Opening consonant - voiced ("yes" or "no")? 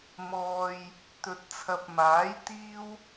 yes